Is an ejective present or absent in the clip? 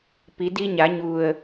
absent